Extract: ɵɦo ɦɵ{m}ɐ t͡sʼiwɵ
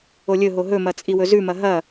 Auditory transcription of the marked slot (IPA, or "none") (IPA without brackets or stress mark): m